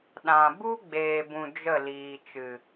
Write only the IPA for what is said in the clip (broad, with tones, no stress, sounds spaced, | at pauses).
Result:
ɗ ã˨ b u˦ ɡ͡b eː˨ b ũ˨ d͡ʒ ə˦˨ l iː˨ t͡ʃ ɨ˨